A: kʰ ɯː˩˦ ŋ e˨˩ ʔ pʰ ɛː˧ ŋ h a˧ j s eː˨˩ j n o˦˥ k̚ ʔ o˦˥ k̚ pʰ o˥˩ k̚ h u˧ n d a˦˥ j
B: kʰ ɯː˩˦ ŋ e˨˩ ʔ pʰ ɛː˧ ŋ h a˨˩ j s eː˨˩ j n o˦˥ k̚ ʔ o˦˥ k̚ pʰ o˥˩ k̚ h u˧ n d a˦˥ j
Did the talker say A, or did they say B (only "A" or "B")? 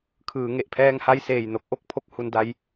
A